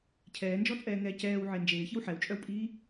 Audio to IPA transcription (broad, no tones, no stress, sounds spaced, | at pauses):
cʰ ɛː n d͡ʒ ɔ t͡sʼ ɛː ŋ ɛː c ɛː w ʕ e n d͡ʒ eː ç i w ħ ɛ w t͡ʃʼ œ w pʼ iː